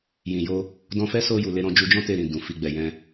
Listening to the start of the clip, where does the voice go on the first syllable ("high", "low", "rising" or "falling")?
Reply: low